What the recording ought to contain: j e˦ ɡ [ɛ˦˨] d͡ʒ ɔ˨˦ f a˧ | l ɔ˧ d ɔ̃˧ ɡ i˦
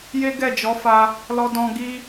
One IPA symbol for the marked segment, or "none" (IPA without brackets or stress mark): ɛ˦˨